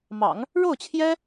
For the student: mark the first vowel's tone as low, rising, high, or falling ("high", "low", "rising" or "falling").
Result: low